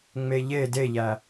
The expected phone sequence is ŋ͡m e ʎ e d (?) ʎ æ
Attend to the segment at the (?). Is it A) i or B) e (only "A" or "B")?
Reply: B